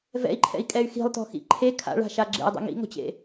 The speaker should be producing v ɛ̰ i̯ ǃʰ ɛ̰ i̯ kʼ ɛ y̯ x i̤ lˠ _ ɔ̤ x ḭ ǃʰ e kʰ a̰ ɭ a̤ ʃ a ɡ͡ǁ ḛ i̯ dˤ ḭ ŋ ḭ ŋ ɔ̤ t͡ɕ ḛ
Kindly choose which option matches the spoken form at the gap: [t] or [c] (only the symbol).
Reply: t